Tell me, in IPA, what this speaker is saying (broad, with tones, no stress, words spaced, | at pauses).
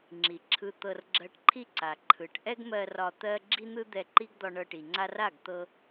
ŋ͡ǁi˨ǁʰɯ˧ t̪ɤ˧rɡ͡ǁɜ˧ʈǃʰi˦ǀa˨ ǃʰɯ˨ʈ ʔɛ˦ɡmɜ˧ rɒ˧ t̪ɜ˦ ɡ͡ǁi˦n̪ɯ˦ d̪ɛ˧ǃi˦ɡd̪ɒ˧ ɳɤ˧ʈi˨ŋ͡ǀa˦r a˦˨ɡ t̪ɤ˧